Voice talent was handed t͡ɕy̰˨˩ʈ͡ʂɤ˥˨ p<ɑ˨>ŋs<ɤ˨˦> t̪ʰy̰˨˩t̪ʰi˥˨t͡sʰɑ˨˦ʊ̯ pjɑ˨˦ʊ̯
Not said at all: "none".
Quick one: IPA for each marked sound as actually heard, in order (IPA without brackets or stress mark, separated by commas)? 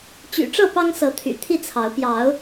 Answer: ɑ˦, ɤ˨˦